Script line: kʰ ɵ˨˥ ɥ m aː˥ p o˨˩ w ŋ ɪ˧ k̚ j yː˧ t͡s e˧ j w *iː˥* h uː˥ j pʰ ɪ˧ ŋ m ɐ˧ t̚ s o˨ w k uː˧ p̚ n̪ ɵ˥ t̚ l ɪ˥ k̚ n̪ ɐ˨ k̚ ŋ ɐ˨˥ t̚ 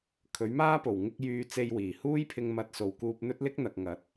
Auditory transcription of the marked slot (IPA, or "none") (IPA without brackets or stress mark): iː˨˩